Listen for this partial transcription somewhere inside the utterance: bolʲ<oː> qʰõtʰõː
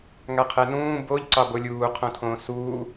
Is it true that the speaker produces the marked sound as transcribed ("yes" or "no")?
no